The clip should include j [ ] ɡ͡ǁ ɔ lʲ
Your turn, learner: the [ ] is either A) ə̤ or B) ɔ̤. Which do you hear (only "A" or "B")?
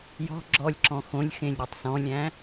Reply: B